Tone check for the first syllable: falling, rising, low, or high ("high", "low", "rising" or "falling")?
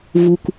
low